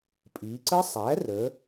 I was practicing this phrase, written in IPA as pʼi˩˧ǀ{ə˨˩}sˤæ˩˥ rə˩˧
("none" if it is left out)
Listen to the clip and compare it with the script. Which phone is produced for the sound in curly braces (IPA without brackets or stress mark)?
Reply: ə˦˥